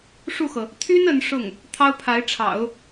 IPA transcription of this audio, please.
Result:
ʂ u˥˩ x ɤ˩ | t̪ʰ y˥ n ə˧˥ n ʂ ʊ˥˩ ŋ | t̪ʰ ɑ˥ ʊ̯ pʰ a˧˥ ɪ̯ ʈ͡ʂʰ ɑ̰˨˩˦ ʊ̯

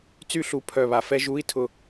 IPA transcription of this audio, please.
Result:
t͡s y˥˨ ɬ u˧˩ pʰ œ˧˩ β a˧˩˧ f ɛ˦˥ ʒ u˧˥˧ i̯ tʰ ʊ˥˨

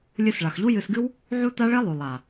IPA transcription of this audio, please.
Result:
lʲ ɨ˧ s ɭ a˨ x ʎ u˦ j ɨ˧ s ɡ ɨ˦ w | ʕ u˦ t a˦ ɭ e˦ lˠ ʉ˨ lˠ a˨

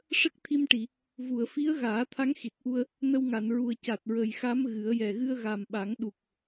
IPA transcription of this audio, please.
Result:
ʂ ə˦˥ k̚ t̪ʰ i˧ m ʈ i˨˩˨ | v u˨˩˨ ə̯ f i˧˥ ə̯ ɣ aː˨˩˦ t̪ʰ a˧˥ ŋ x i˨˩ t̚ ʔ u˧ ə̯ | n ə˧ w ŋ a˨˩˨ n ɹ u˨˩ ə̯ c a˨˩ t̚ ɹ ə˨˩ j x a˧˥ m ɣ ɨ˨˩˦ ə̯ j ɛ˨˩ ɣ ɨ˧ ə̯ ɣ a˨˩ m ɓ a˨˩˦ ŋ ɗ u˨˩ k̚

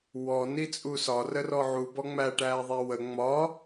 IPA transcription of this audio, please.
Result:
w ɔ n i t͡sʼ u s ɒ r ə r ɔ ʕ u b ɔ ŋ͡m æ ʈ æː ðˤ æ w ə ŋ͡m ɒ

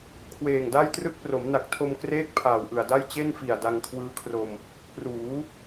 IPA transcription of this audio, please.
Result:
kʰ w eː˨˩ ŋ d a˥˩ j t r ɯ˥˩ k̚ p r o˩˦ m n a˨˩ k̚ tʰ o˧ m k r eː˥˩ k̚ pʰ aː˨˩ w ʔ ɯ˨˩ a̯ d a˥˩ j t͡ɕ e˥˩ n f i˨˩ a̯ d a˧ ŋ kʰ w ɯː˦˥ kʰ r o˧ m | p r uː˩˦

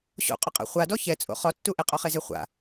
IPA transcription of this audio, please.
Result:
ɕ o̰ qʼ ʊ qʼ a̰ χʷ a d ɔ ç ɛ t͡sʼ o̰ χ ɔ tː u ʔ ɪ qʼ ɔ χ e z e χʷ a̰

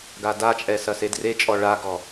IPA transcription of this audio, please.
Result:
ɡ a d a t͡ʃʼ ɛ s ɐ s e d r e t͡ʃʼ ɔ ɭ a ɡ ɔ

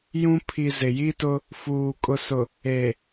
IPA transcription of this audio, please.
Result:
j ũ˦ pʰ i˨ z ɪ˨ j i˦ t ʊ˦ | f uː˨ kʼ ʊ˨ s ʊ˨ | e˨

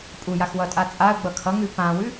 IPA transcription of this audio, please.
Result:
pʼ u j a x w ʌ tʼ a t͡sʼ a ə̯ ɡ͡b ʌ kʰ ʌ ŋ ʉ p ã w ʉ

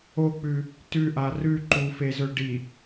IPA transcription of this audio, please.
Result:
o k͡p ʉ | t ʉ ʔ a r ʉ ǃ u f e z ɵ ɖ i

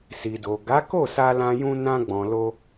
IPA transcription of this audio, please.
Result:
s i˨ d o˨ ɡ a˨˦ k o˦˨ s a˧ l ã˧ j ũ˧ n ã˧ ɡ͡b ɔ̃˨ l o˧

